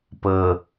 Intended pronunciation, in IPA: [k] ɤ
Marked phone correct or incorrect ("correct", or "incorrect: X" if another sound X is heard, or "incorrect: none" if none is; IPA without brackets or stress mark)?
incorrect: p